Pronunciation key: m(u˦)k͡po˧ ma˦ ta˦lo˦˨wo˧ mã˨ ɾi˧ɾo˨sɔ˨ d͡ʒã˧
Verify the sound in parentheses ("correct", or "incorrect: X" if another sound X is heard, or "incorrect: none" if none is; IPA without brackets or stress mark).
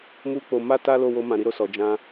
correct